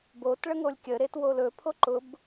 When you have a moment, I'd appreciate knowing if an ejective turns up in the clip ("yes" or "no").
no